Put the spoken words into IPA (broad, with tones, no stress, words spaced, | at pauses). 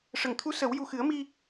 ʂə˨˩˨ŋt̪ʰu˧˥ sə˨˩˦w ju˨˩xɨ˨˩˦ə̯mi˧